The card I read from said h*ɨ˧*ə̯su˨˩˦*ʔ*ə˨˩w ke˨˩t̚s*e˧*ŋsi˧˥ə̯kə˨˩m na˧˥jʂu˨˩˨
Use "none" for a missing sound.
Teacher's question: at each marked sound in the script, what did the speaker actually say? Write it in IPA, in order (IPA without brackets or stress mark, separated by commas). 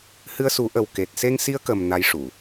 ɨ˧, ʔ, e˧